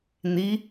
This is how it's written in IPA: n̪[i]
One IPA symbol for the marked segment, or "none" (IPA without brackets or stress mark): i